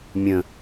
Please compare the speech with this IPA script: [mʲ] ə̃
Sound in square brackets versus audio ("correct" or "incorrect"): correct